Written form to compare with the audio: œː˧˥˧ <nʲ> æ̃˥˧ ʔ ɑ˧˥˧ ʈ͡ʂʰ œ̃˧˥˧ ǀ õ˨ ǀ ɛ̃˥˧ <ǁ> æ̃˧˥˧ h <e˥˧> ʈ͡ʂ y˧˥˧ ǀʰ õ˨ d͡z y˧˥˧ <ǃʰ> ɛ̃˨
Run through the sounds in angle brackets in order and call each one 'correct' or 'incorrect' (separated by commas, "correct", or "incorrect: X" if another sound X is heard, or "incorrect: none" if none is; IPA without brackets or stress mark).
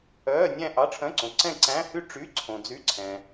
correct, incorrect: ǀ, incorrect: y˥˧, incorrect: ǀʰ